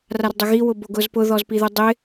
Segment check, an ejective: absent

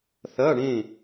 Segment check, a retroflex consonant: present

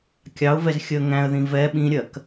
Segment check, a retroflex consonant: absent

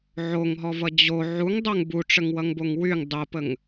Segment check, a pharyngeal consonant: present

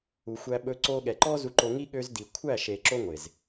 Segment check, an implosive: present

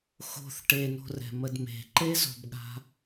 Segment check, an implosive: present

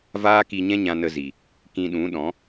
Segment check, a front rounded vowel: absent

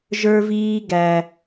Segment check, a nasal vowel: absent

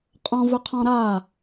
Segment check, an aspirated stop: present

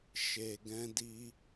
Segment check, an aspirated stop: absent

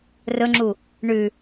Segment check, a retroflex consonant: present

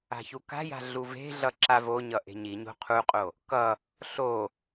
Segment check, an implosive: absent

